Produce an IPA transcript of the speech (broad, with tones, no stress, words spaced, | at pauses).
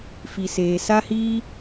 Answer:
fi˨seː˨sa˦hiː˦